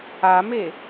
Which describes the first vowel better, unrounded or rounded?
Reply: unrounded